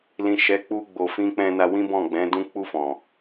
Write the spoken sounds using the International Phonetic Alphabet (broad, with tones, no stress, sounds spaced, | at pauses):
l ĩ˨ ʃ ɛ˨˦ k͡p u˧ ɡ͡b o˨ f ĩ˧ k͡p ɛ̃˧ n a˧ w ĩ˦ b ɔ̃˦˨ ɡ͡b ɛ̃˨˦ d ũ˦ k͡p u˧ f ɔ̃˨